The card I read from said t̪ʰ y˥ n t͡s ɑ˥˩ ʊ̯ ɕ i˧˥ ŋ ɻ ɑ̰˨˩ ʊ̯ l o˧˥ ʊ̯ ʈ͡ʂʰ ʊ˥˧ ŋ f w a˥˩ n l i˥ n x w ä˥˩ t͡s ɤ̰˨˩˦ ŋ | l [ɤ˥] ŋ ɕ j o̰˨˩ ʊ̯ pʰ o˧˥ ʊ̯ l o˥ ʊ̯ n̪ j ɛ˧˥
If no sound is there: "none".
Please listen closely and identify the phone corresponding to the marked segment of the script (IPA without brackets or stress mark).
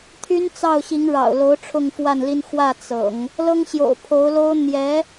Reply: ɤ˥